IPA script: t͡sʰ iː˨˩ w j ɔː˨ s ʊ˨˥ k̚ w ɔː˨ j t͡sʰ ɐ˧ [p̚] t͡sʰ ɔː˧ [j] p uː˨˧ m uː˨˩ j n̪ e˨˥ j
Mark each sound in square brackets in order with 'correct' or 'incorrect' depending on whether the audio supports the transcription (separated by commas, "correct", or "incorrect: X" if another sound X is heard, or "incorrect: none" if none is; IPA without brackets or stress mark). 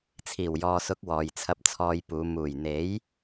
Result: correct, correct